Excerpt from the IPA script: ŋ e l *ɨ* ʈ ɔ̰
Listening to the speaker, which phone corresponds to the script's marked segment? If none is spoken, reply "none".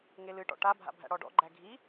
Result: ɨ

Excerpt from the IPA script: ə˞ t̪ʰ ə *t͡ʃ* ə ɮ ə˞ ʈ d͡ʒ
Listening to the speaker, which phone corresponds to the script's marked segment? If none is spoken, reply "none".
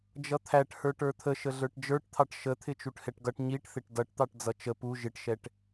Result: ʃ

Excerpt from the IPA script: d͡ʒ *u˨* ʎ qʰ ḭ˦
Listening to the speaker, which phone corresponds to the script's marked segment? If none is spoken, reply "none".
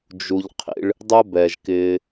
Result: u˨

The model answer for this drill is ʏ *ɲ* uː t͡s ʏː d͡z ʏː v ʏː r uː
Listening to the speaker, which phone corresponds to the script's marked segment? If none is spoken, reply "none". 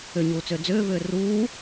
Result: ɲ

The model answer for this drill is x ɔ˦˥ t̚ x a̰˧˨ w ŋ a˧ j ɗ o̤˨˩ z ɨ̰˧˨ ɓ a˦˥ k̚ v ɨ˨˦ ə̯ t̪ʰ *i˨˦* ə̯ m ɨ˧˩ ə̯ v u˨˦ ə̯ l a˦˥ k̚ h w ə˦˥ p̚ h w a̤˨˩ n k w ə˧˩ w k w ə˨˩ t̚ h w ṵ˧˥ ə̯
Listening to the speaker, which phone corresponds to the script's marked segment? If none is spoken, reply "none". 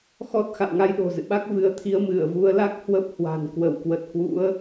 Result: i˨˦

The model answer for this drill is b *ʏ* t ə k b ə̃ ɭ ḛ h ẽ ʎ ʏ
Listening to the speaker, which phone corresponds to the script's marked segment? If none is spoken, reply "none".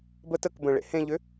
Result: ə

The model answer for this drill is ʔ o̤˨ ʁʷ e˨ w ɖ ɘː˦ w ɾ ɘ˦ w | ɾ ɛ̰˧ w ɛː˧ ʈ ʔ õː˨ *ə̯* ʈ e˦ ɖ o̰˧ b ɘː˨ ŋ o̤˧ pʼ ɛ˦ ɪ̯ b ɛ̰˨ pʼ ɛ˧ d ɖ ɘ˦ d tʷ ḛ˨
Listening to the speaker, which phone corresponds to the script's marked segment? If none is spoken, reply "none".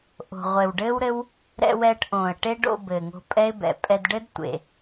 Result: ə̯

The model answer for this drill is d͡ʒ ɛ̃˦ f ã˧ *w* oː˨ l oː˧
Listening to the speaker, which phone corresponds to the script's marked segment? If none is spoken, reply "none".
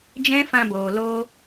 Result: b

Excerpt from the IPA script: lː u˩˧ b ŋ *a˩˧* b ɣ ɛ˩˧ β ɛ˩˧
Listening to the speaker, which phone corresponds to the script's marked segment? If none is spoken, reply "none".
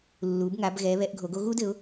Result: a˩˧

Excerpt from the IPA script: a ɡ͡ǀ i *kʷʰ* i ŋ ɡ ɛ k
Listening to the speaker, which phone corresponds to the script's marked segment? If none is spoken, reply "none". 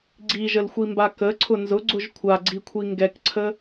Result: kʷʰ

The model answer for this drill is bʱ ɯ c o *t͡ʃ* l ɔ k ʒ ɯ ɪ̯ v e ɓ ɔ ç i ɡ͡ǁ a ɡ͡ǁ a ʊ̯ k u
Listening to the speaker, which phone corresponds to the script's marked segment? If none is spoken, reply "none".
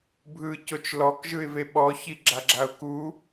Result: t͡ʃ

